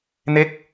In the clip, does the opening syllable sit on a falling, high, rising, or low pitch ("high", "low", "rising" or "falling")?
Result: falling